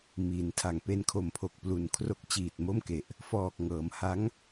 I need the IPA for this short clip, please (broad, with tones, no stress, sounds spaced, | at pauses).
m iː˩˦ n tʰ a˨˩ ŋ p e˧ n kʰ o˨˩ m pʰ o˨˩ k̚ p l u˨˩ n kʰ r o˦˥ k̚ t͡ɕ iː˨˩ t̚ m o˥˩ m k e˨˩ ʔ | f ɔː˨˩ k̚ ŋ ɤː˩˦ m h a˦˥ ŋ